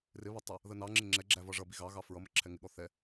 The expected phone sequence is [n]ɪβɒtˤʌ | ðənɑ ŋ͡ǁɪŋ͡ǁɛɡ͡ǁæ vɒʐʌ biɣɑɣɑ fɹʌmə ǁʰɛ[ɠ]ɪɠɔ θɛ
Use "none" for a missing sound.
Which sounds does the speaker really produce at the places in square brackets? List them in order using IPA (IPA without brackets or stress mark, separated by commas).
r, ŋ